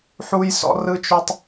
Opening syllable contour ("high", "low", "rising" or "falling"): high